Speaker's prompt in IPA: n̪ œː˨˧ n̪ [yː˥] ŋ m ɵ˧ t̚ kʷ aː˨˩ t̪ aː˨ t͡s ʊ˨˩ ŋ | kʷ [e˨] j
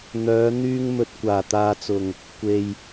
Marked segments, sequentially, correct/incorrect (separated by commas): incorrect, correct